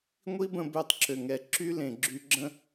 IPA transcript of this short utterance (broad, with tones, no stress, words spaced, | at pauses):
ŋʷi˦bə̃˧ bø˧tˤǁø˨ŋɛ˨ ǁy˦lẽ˨ ɡ͡ǁy˧ɡ͡ǁə̃˦